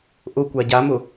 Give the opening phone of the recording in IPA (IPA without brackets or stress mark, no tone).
ʔ